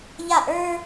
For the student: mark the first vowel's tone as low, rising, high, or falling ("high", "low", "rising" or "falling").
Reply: falling